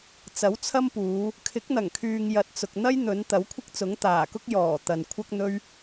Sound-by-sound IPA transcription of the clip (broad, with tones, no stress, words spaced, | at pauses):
t͡sɐ˨˥wt͡sʰɐ˥mpuː˨˧ | kʰɪ˨˥k̚n̪ɐ˨˩ŋkʰyː˨ŋ jɐ˨t̚t͡sʊ˨k̚ n̪ɐ˥jn̪ɵ˨˧n t̪ɐ˨˥wkʷʰɪ˥k̚t͡sʊ˨˥ŋ t̪aː˨˩kʊ˥k̚ jɔː˨˩ t̪ɐ˨n kʷʰɐ˥k̚n̪ɵ˥ɥ